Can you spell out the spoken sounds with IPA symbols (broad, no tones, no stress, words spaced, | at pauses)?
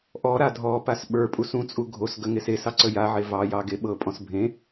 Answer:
ʔɔɾa dʱɔpas ɓə˞ pʼusũt͡sʼu ɡʱos ɡəŋes esɑ ǀəjaʕe vɑjɑ ɡeɓɤpʼɔ̃s bʱẽ